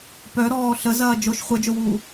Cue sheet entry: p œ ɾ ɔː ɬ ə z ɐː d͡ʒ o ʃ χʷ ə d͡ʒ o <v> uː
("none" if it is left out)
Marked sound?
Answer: w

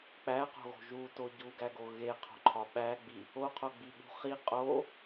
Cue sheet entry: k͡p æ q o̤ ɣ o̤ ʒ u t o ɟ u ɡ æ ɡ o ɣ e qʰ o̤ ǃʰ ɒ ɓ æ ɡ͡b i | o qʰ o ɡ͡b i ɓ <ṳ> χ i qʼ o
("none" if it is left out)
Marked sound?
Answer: ṳ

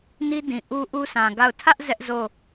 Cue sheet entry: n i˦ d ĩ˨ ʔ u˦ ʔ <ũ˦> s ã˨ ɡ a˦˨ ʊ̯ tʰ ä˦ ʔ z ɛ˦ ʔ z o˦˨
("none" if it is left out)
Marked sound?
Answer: u˦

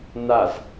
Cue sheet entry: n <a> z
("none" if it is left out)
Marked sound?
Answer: a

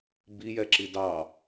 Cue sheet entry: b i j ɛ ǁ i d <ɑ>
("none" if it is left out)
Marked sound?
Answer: ɑ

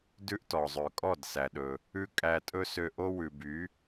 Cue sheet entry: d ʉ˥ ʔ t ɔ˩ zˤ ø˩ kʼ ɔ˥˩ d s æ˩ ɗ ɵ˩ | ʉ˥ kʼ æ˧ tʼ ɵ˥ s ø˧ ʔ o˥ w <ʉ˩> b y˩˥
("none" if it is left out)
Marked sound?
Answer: ʉ˩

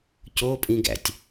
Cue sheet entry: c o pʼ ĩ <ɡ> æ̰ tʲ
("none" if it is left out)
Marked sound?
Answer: ɡ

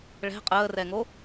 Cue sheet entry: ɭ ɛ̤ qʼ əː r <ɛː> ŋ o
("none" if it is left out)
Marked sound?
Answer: ɛ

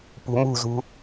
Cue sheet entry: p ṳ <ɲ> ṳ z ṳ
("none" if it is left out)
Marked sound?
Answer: m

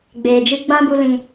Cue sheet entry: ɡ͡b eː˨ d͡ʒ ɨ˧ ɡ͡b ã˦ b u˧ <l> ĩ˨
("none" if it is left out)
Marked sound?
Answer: l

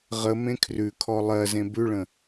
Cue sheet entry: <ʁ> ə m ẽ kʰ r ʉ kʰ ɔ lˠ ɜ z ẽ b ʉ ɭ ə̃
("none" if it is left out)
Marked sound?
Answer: ʁ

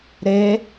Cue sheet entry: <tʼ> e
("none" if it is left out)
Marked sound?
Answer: ɾ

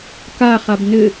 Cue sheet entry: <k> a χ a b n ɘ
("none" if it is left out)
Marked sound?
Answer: k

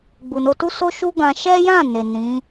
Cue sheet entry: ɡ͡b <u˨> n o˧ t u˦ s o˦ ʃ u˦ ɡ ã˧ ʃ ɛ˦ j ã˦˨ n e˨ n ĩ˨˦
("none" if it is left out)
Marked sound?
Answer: u˨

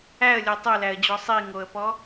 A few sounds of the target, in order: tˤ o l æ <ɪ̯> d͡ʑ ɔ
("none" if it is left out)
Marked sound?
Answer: ə̯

